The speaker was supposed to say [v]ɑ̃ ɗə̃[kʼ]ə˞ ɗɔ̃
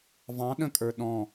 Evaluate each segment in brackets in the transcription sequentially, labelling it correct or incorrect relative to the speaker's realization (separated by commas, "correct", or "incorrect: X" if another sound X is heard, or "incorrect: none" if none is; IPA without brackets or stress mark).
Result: correct, correct